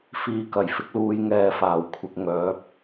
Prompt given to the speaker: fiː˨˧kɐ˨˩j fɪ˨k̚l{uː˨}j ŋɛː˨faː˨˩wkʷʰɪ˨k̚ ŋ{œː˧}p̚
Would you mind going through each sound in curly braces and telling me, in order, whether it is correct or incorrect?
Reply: correct, incorrect

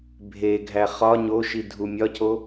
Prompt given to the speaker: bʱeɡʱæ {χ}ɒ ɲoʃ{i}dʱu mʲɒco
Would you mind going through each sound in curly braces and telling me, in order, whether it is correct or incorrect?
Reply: correct, correct

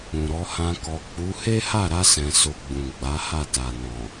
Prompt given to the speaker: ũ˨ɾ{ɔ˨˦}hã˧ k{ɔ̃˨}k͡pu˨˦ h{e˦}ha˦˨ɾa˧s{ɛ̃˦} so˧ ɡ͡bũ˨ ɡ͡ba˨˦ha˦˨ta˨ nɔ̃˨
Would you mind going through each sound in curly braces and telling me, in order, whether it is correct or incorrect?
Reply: correct, incorrect, correct, incorrect

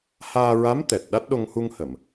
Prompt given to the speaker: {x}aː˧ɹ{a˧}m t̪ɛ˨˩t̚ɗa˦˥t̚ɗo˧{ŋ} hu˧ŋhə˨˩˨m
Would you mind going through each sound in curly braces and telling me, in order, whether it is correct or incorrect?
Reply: incorrect, incorrect, correct

